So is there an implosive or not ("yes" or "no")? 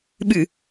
yes